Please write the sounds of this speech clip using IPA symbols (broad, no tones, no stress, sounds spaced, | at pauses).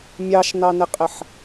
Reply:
mʲ ɑ ʃ n ɑ n ɪ qʼ ɪ ħ